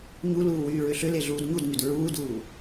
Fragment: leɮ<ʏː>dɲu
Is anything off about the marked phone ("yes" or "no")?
yes